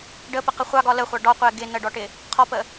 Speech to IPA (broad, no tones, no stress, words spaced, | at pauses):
ɖəpəqə χʷɑɡɒ ləχʷɑ ɖɒqʷɛ ɡɪ nəɖɔʈɪ | qʰɔpə